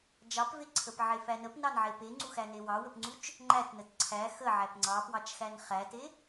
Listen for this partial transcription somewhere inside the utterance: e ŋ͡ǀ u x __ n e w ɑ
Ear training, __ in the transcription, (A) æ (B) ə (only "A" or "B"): A